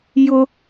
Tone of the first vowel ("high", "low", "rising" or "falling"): high